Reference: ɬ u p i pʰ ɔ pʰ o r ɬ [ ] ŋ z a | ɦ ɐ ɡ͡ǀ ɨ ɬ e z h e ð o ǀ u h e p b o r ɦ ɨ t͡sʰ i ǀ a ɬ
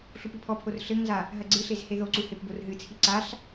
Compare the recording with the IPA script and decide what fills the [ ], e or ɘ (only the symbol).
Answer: ɘ